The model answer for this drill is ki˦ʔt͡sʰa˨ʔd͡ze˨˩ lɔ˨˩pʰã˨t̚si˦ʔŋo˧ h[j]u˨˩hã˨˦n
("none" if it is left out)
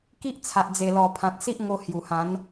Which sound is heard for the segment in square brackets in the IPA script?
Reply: j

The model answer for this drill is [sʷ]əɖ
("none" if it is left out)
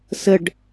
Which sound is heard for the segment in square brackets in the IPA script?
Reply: s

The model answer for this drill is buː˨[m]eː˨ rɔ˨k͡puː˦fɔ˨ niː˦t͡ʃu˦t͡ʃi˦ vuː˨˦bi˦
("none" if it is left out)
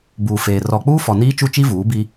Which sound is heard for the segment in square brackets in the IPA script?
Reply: f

